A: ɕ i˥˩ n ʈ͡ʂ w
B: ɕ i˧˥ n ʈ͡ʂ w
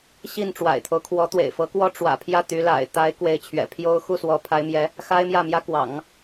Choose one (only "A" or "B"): A